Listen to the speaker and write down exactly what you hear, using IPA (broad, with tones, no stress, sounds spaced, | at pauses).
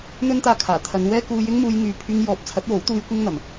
n̪ ɵ˥ n t̪ aː˧ kʰ aː˨˩ t̪ʰ ɐ˨˧ n w ɛː˥ k uː˧ j ɪ˥ ŋ m uː˧ j ŋ yː˧ pʰ yː˧ ŋ j ɔː˨˥ p̚ t͡sʰ ɐ˨˥ t̚ w o˨˥ w t̪ uː˧ j kʷ ɪ˥ ŋ n̪ ɐ˨ m